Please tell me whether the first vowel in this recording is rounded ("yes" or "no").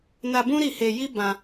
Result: no